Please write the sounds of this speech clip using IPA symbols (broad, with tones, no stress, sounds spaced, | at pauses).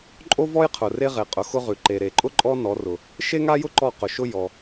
ǃʼ o˥ v ɔ˥ j qʰ ʊ˨ r e˥ ʁ e˨˦ qʼ ʊ˨˦ x ʊ˥ ʁ ʉ˨ ǃ e˨ ɾ e˨ ǃʼ ʊ˥ ǃʼ ɔ˥ n ɔ˨˦ r ʊ˨ | ʃ e˥ ŋ a˥ j ʊ˥ ǃ ɔ˥˨ q ʊ˨ ʃ ʊ˥ j ɔ˨